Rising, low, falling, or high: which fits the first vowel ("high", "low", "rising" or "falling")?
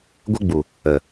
high